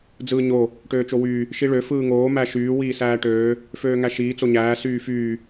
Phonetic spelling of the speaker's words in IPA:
d͡z ɯː ɲ o | ʈ øː t͡ʃ o w yː | ʃ i ɭ ø f ɯː ŋ oː m æ ʃ yː w iː s æː ʈ øː | f øː ŋ æ ʃ iː t͡s o ɲ æː s yː f yː

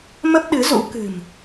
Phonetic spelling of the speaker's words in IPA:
m ə˦˥ p̚ ɗ ɨ˨˦ z ṵ˧˥ k ɨ̤˨˩ m

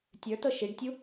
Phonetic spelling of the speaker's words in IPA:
tʲ ə˞ t ɤ ʃ i ɖ tʲ u

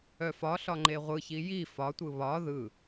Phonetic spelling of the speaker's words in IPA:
œ f ɒ ɬ ɒ ŋ͡ǃ e ʁʷ ɯ ç i j i f ɒ tʷ ɯ β ɒ ð ɯ

